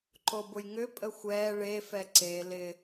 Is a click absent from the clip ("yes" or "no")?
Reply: no